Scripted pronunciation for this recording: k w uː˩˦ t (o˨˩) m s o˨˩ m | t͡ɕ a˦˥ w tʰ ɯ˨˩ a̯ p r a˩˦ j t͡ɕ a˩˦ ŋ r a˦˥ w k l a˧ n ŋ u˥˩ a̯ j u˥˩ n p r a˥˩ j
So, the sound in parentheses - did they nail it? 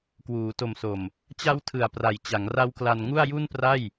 yes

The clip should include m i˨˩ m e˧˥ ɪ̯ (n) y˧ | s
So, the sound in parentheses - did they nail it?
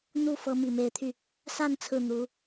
no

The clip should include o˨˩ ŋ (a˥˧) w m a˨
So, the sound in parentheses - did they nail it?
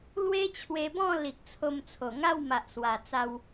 yes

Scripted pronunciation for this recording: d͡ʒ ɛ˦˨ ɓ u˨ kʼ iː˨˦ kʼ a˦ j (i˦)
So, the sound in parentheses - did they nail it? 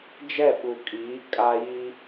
yes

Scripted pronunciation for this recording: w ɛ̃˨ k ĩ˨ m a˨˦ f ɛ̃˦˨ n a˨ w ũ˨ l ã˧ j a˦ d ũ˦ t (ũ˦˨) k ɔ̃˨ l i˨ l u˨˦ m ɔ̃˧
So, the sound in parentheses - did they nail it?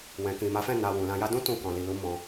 yes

